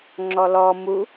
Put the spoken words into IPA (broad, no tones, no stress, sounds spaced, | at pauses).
ŋ͡ǁ ɔ l ɔ m u